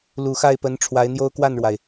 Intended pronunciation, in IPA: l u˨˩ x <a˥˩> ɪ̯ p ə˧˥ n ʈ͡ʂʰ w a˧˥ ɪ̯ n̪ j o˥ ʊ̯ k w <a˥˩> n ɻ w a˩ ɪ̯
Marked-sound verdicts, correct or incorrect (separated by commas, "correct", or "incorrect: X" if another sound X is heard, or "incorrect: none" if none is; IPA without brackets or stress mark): correct, correct